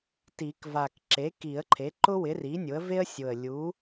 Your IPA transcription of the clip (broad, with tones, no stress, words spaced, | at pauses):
ti˨˩˦kva˨˩k ǁe˩˥ki˨˩˦ə̯ǃʰe˩˥ ǃʊ˥wɪ˩˥ri˩˥ nʲʊ˩˥ə̯ ve˥ə̯sʲʊ˨˩ə̯ lʲu˩˥